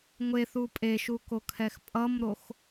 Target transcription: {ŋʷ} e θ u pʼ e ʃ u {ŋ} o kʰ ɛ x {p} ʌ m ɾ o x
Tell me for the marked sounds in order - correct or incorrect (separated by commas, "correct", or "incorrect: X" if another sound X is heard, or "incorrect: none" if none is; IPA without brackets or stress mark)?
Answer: correct, incorrect: k, incorrect: pʼ